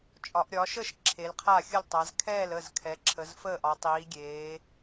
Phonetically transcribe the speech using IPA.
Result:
t͡ʃʼɒ˩˧ʔɾʲɒː˩˧ʃə˥˩ʃ ǁʰe˩˧lqʰa˥˩xʲə˥˩ltˤa˩˧z kʰɛː˥˩l ə˥˩zkʰɛ˩˧ǁʰə˩˧zfəː˥˩ʔ ɒ˩˧tˤiː˩˧ɡʲeː˩˧

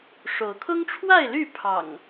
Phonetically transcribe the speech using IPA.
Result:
ʂo˨˦ʊ̯ kʰʊ˦ŋʈ͡ʂʰwa˥˨ɪ̯ly˥˨ pʰɑ̰˨˩ŋ

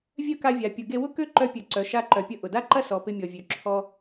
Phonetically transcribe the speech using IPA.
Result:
vʲœ˥ka˧vʲa˩pʲʊ˩ ɡe˧wʊ˥kø˥ǃœ˧ pʲœ˩ ǀœ˩ʃa˧ǃœ˩pʲə˧ ʔʊ˩da˥ǃɐ˥ sɔ˩pɪ˧mʲɔ˩vʲø˩ ǁʰɔ˧

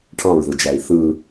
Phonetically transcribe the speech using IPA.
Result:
ʈʰɑ̃ɹðɯd͡ʒæi̯ θɯ

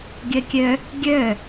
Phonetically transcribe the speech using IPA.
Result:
ɡʲɜkʲœ | ɡʲœ

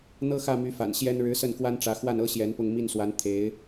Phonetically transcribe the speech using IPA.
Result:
n̪ɤ˥xä˥˩my˧˥ fa̰˨˩nɕjɛ˥n ɻɻ̩˧˥sə˥˩nkwa˥nʈ͡ʂä˧˥ xwa˥˩nɤ˥ ɕjɛ˧˥npʊ˥˧ŋ mi˥˩nswa˧˥n t̪ʰe˧˥ɪ̯

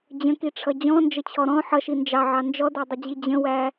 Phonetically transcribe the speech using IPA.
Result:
d͡ʑə̃kiʈ͡ʂʰʌ d͡ʑɔ̃nd͡ʒət͡ɕʰɔ ɾɔ̃ ħʌʃi nd͡ʒɑʕɑ nd͡ʒɔdædˤəd͡ʑi d͡ʑə̃wæ

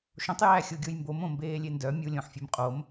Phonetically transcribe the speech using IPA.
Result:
ʃõtˤjæːxʲo ɡʲojmbomõ mbeːlʲendœ mʲulʲõħfʲem qʼom

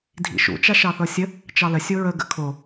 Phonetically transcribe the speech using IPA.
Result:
dʱḭʃṵ t͡ʃaʃɑθɤsʲə | t͡ʃɑlə sʲoɹə ɡə̰kʰo

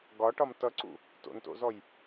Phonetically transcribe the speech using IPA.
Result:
ɡɒʈɒm tʌǀṵ | to̰nto̰zɔj

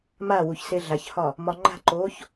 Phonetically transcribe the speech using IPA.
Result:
mawuç seɮaçhɒ | mɒŋ͡ǃa̤ǃoːç

